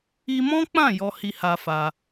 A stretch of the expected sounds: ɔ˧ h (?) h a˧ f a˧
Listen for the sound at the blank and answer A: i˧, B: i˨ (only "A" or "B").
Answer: A